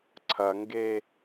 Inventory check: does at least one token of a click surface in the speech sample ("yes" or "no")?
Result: yes